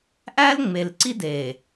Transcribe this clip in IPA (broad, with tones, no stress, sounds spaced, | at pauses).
ʔ æ˦ l ŋ͡m e˨ l ǀ i˦ d e˨